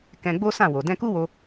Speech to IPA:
k ɛ̃˧ ɡ͡b o˦ s ã˦˨ w o˨ d ɛ̃˧ k u˦ w o˧

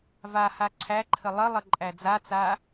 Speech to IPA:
v a h a ǀʰ æ ǃʰ ə lˠ ə lˠ ə ǃʼ æ d͡z a t͡s a

